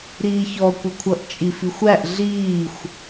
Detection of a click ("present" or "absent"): absent